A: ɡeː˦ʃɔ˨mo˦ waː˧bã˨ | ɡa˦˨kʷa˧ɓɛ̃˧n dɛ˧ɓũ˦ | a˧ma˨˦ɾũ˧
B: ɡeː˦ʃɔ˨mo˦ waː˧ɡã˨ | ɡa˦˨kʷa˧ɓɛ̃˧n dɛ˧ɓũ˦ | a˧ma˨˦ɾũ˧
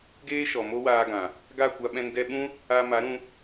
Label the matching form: B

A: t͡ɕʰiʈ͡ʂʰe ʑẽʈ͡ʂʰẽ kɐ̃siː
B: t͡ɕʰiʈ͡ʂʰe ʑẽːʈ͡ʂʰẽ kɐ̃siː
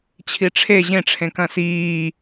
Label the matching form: A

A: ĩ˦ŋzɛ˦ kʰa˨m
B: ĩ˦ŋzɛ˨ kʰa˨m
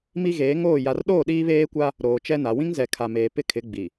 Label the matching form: B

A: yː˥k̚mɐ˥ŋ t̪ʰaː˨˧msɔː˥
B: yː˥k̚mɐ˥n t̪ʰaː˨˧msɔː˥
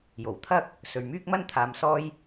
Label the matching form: B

